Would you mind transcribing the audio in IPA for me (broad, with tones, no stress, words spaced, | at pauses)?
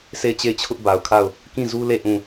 sʰe˦˨ɪ̯t͡ɕe˦˨ɪ̯t͡ɕʰʊ˦ʔ ba˨ʊ̯kʰa˦˨ʊ̯ | kĩ˦˨zu˦le˦˨ ʔũ˦˨